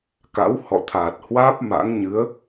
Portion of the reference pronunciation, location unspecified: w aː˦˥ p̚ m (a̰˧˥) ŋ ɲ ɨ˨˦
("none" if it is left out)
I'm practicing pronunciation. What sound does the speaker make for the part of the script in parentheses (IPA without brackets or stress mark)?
a̰˧˥